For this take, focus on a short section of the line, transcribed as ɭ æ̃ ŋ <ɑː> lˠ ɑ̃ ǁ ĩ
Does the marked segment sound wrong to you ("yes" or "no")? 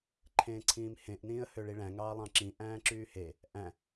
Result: no